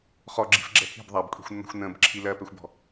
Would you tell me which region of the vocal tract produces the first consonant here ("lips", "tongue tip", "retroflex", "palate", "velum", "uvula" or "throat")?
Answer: uvula